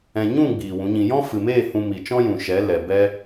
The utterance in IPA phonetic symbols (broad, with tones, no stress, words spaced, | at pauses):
ɛ̃˧ ɲũ˦˨ ɡ͡biː˨wũ˨˦ɲĩ˧ jɔ̃˦fɨ˨meː˦˨ hũ˧mi˨t͡ʃɔ̃˦jũ˨ ʃɛ˨˦lɛ˨bɛ˦